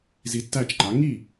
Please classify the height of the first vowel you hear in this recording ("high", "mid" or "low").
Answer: high